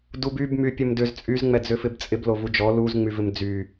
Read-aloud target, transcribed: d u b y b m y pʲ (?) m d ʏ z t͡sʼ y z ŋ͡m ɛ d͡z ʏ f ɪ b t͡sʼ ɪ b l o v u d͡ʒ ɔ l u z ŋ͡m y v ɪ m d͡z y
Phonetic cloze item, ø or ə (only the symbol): ə